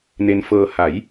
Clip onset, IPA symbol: n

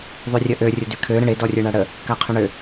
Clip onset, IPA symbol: ðˤ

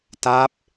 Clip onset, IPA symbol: t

